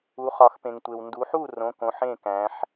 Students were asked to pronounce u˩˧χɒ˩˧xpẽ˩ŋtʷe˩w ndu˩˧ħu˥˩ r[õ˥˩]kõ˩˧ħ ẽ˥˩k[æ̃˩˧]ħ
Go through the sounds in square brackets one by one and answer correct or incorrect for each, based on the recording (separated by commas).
incorrect, correct